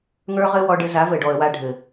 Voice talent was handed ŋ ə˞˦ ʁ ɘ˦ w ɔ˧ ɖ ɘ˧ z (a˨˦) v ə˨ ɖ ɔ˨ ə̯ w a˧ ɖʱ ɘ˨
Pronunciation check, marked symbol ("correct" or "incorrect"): correct